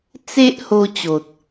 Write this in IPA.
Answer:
t͡s e˦ ʔ h o˧ t͡ɕ o˨ t̚

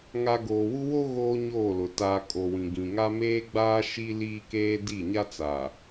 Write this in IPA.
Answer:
ŋ a˨ ɡ oː˨ w u˦ w o˦ ɣ oː˦ ɲ oː˦˨ l ʊ˨ t aː˨ kʼ o˨ w ĩ˨ ɡ ĩ˨ ŋ a˦ m eː˦ ɡ͡b aː˦ ʃ i˦ l iː˦ k eː˦ d i˦˨ ɲ a˦ t͡s a˨

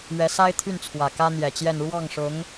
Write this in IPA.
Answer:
ɥ ɛ˧˥ s a˥ ɪ̯ t̪ʰ y˥˩ n t͡sʰ w ä˨˩ k ä˥ n̪ j ɛ˨˩ t͡ɕ j ɛ˥˧ n ɻ w ɑ˥˩ ŋ ʂ ʊ˧˥ ŋ

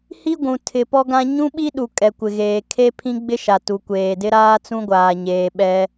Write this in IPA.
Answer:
h i˦ ɡʷ ũ˨ tʰ ɪ˨ p ɔ˦ ɡ ã˦ ɲ ũ˦ ɓ i˦ ɗ u˨ kʼ ɛ˨ kʷ ɪ˨ ɣ eː˨ kʰ e˦ pʰ ĩ˦ ɡ͡b ɪ˦ ʃ a˨ t u˨ kʷ eː˨ d ɪ˦ ɾ aː˦ t͡s ũ˦ ɡʷ aː˨ ɲ eː˨ ɓ ɛ˦

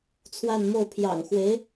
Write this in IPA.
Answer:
t͡sʰ w a˥˧ n m o˥˩ ʊ̯ pʰ j ɑ̰˨˩ ŋ x w e˧˥ ɪ̯

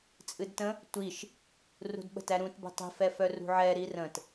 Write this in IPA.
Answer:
t͡sʼ ɨ d t ə̃ | tʷ i ʃ | r ṳ d ɓ ə̤ t æ ɾ ũ t b ə̤ tˤ i̤ f ɛ f œ r ṳ ʕ ɛ ɾ i r ə̃ t

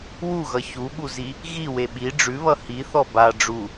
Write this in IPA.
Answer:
w u ɣ ʌ ç u ɓ u z i | ɣ i w e ɓ i ɖ͡ʐ ʉ β ʌ h i θ ɔ b a ɖ͡ʐ u

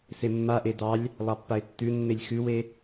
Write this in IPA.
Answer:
s e mː a ʔ e d ɑ lʲ | lˠ ɑ pː a ɪ̯ tː ʉ nː e lʲ x ʉ w e

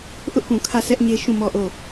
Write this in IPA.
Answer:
ʔ ʊ˦ ʔ p ũ˨ kʰ ä˦˨ s ɛ˦ ʔ ɲ e˦ ʃ ũ˦˨ m ɔ˦˨ ʔ o˦˨

